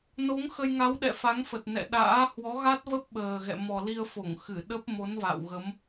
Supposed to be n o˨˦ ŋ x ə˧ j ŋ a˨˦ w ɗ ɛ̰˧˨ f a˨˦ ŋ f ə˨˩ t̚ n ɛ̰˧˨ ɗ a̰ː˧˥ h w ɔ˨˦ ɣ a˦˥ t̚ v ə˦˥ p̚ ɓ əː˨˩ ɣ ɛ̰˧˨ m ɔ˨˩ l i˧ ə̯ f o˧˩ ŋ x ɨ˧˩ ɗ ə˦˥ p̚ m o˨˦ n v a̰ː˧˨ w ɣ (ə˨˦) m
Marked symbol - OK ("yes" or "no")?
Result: yes